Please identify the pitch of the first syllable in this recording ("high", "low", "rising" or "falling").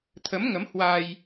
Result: rising